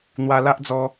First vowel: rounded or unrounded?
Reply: unrounded